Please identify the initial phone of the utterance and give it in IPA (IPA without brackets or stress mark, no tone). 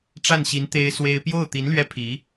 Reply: ʈ͡ʂ